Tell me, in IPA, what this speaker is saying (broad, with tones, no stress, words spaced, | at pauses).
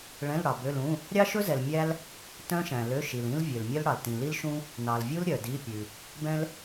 ɭɛ̃˧˥˧lɽɑ˨bø˧˥˧lũ˧˥˧ | ɾʲɑ˥ʃɵ˥zɛ˨l mʲæ˥l | tœ̃˥ʃæ̃˨ lø˧˥˧ ʃi˨lĩ˥l vʲø˨lmʲœ˥lɽɑ˨l tĩ˨li˥lʃũ˥ | nɑ˨lvʲu˥l ɾʲœ˨di˧˥˧pʲʉ˨ | bɛ̃˥l